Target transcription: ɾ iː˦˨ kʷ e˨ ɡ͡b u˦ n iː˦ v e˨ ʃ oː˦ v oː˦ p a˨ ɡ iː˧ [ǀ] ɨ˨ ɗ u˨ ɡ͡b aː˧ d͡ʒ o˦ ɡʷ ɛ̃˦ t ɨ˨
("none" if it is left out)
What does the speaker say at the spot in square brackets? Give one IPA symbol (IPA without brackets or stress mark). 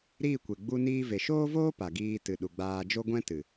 t